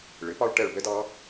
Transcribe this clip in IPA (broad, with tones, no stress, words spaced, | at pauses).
ɭɪ˩˥pɑ˥ɭ ʈɛ˦˨ɭbɛ˥dɑ˧˥